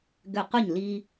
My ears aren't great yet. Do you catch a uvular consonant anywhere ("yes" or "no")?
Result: yes